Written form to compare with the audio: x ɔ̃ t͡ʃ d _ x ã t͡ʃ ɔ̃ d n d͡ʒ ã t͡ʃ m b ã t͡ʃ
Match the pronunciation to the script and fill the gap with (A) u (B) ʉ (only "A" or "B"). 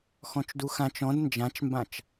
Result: A